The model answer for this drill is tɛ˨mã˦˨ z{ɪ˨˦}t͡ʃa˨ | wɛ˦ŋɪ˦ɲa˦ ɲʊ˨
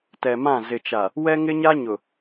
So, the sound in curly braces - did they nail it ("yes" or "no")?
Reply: no